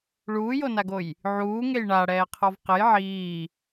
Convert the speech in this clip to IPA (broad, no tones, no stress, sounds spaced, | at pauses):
ɭ uː j o n a ɡ o j | ʕ uː ŋ e j ɳ a ɽ ɛː qʰ ɔ v q ɘ j ʕ iː